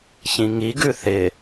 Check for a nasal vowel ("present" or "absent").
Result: present